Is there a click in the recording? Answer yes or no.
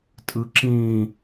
yes